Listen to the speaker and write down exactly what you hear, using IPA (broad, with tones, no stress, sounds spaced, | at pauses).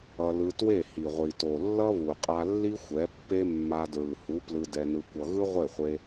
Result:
ʌ˧ l ɯ˧ t w e˦˨ h i˨ ʁʷ i˨ t o˨ lː ʌ˦ β u˨ qʼ a˧ lː i˦ xʷ ɛ˨˦ pː e˦ mː a˧ d ɹ ɯ˨ h u˨˦ p l ɯ˧ d ɛ˧ n ɯ˧ kʷ ʌ˧ ɣ ɯ˦ ʁʷ e˦˨ χʷ e˧